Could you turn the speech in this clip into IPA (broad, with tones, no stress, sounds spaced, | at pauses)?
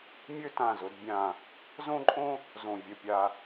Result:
mʲ ø˥ t ã˧˩ z ʊ˩˧ d bʲ ã˧˩ | z õ˥ ǃʼ õ˥ | z õ˧˩ vʲ ə˧˩ pʲ a˧